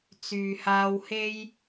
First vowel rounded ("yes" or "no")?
yes